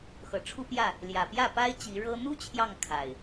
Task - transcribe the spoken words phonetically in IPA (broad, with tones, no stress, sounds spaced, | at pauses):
x ɤ˨˩ ʈ͡ʂʰ u˦ p j ä˥˨ | l j ä˨˩ p j ä˥˨ p a˦ ɪ̯ t͡ɕ i˨˦ ɻ ɤ˦ n̪ u˦ t͡ɕʰ j ɑ˥˨ ŋ kʰ a˨˩ ɪ̯